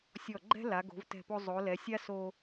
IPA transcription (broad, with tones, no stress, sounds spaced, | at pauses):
sʲ ɔ˧˩ ɡ͡ǃ ɛ̤˥ l a˩˧ ɡ o̤˩˧ v t ɛ̤˧˩ p o˧ zˤ o˩˧ l ɛ˩˧ sʲ a˥ s o˧